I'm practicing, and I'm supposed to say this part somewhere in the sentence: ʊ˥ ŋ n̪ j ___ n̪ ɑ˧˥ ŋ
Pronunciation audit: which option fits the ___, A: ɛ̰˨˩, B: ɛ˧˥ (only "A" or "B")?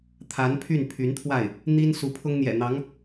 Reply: A